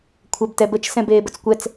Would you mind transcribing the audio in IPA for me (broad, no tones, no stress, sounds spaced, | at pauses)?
kʷʰ ɛ b t ɛ b ə t͡ʃ s ɛ̃ b eː b ə t͡s kʷ ɛ t͡s